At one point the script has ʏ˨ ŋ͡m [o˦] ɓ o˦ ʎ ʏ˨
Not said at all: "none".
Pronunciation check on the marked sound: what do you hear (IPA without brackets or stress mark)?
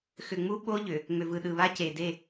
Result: u˦